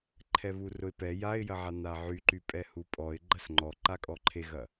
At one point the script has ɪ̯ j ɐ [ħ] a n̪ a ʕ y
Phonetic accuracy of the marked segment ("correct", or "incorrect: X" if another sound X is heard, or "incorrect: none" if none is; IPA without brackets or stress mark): incorrect: ʕ